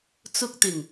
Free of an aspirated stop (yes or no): yes